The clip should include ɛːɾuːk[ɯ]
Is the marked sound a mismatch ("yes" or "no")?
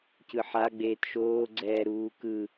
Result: no